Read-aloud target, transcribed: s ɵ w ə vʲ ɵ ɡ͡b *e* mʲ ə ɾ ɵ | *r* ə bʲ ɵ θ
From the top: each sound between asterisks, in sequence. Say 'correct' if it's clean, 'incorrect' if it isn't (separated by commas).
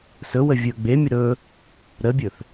correct, incorrect